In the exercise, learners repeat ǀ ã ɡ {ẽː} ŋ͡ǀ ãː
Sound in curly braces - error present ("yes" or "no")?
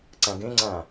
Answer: yes